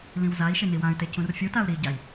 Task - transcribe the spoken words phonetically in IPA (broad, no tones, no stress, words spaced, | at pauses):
lĩwzai̯ʃɪ niwãy̯te cũrfʲutau̯ ɾiɟai̯